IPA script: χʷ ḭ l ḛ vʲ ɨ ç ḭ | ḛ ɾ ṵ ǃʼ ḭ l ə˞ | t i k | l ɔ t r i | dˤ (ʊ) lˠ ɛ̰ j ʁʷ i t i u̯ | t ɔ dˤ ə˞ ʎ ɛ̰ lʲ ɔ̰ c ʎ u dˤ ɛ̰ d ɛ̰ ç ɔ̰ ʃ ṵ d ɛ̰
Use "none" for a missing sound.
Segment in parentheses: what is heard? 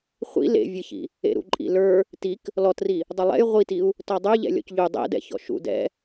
ʊ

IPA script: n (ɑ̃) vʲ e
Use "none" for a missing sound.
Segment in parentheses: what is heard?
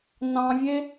ɑ̃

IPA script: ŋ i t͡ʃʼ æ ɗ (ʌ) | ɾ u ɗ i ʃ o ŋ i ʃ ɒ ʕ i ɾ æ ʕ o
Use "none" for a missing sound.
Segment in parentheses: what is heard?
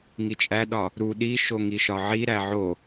ɒ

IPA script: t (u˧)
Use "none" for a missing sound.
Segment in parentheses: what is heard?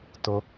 o˧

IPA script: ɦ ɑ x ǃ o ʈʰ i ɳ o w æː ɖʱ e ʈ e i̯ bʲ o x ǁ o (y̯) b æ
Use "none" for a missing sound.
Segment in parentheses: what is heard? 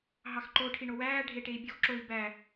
i̯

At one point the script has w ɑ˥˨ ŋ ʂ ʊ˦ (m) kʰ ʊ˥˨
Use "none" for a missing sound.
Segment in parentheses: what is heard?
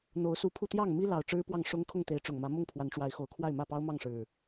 ŋ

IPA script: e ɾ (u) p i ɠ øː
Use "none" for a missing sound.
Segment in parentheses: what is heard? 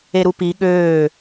u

